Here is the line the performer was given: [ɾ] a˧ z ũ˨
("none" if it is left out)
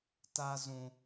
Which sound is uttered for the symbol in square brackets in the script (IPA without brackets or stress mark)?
t